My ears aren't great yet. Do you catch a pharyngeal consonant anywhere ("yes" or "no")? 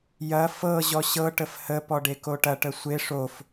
no